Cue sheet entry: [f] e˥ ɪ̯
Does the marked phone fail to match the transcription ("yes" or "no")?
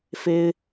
no